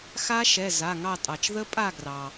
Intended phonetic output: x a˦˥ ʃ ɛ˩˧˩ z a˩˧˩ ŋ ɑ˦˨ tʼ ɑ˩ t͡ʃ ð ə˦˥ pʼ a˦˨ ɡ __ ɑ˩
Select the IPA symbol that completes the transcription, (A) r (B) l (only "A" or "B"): A